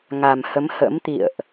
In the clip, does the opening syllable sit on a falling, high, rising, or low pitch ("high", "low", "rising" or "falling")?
low